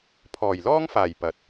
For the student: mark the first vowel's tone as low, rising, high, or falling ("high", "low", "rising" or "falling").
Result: low